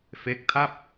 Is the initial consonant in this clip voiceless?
yes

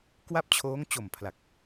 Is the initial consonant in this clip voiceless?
yes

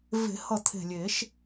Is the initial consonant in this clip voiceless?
no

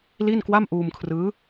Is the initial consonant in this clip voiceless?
no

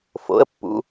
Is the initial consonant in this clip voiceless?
yes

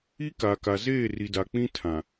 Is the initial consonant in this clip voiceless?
yes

